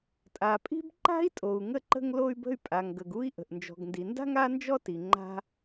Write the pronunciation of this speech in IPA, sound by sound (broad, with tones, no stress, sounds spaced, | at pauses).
tʼ a˩ pʼ i̤˥ b ǃ a̤˥ i̯ tʼ o˩ u̯ ŋ ə˧ ǃ ə̤˧ ŋ l o˧ y̯ b ə̤˧ y̯ pʼ a˩ ŋ ɡ ə˩ ɡ u˥ i̯ ʔ ə̤˩ ʔ n d͡ʒ ɔ̤˩ ɡ n d i˩ n d a̤˥ ŋ a˥ n d͡ʒ ɔ˥ t i˩ ŋ͡ǃ a̤˥